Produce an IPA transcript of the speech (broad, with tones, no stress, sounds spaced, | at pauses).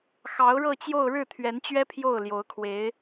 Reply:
x ɑ˧˥ ʊ̯ ɻ ɤ˥˧ t͡ɕ j o˥˧ ʊ̯ ɻ ɻ̩˥˩ t̪ʰ ɥ ɛ˧˥ n t͡ɕ ɥ ɛ˥ pʰ j o˥˩ ʊ̯ l j o˧˥ ʊ̯ kʰ w e˧˥ ɪ̯